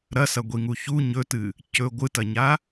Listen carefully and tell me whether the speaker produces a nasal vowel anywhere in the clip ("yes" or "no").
no